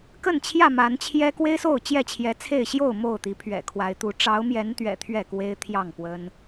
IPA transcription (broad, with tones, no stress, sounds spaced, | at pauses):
k ə˥˨ n t͡ɕʰ j ä˥˨ m a˨˦ n t͡ɕʰ j ɛ˦ k w e˦ ɪ̯ s o˥˨ ʊ̯ t͡ɕ j ɛ˥˨ t͡ɕʰ j ɛ˨˦ t͡sʰ e˥˨ ɪ̯ ɕ j o˥˨ ʊ̯ m o˥˨ ʊ̯ t̪ i˨˦ pʰ ɥ ɛ̰˨˩ kʰ w a˨˦ ɪ̯ t̪ u˨˦ ʈ͡ʂ ɑ˨˦ ʊ̯ m j ɛ˨˦ n t̪ ɥ ɛ̰˨˩ t̪ʰ ɥ ɛ˥˨ k w e˦ ɪ̯ t̪ʰ j ɑ˥˨ ŋ p w ə˦ n